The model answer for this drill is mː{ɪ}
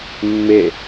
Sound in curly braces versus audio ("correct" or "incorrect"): correct